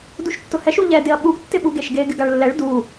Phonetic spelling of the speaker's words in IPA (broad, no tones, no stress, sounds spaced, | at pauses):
d u ʃ tː ʊ h ɛ ʃ u ʎ ɛ d ɪ ɐ̯ ɓ u ɡ tː ɪ ɓ u ɡ e ʃ ɡ e ɡ ɪ ɡ a ɭ lː ɛ ɭ d u